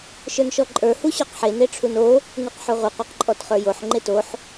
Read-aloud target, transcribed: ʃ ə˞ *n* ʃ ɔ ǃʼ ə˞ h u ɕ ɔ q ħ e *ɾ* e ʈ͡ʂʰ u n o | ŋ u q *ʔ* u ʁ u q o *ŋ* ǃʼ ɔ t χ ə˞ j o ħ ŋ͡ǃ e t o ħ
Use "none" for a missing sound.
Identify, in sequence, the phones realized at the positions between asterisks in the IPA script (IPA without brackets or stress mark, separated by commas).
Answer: n, n, ħ, q